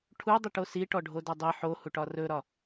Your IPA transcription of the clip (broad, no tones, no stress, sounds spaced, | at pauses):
ʈʰ u dˤ i ʈ o s i ʈ ɔ ɖʱ o d ɵ dˤ i ħ o h u ʈ ɒ r ɵ ɾ ɒ